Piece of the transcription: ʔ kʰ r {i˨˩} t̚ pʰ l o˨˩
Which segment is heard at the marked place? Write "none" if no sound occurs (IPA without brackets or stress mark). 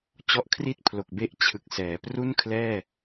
i˥˩